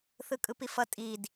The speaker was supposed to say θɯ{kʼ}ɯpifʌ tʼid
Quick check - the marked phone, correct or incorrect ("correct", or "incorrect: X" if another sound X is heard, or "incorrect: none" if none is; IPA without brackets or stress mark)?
correct